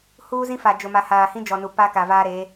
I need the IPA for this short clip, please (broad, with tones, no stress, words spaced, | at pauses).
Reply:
huː˦zĩ˦ fa˨d͡ʒʊ˨ma˨haː˨ hĩ˦d͡ʒɔ˨nu˨ pa˦ka˨vaː˦ɾeː˨˦